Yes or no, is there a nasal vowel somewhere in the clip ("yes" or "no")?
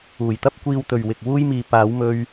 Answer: no